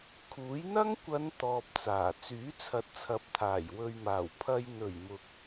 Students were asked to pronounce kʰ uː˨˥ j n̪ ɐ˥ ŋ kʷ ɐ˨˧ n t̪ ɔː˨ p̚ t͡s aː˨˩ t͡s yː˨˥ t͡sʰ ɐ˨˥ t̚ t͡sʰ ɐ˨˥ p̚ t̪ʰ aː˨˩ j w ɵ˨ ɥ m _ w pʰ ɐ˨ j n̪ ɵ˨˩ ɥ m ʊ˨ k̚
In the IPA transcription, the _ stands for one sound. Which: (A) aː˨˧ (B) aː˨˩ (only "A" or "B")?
B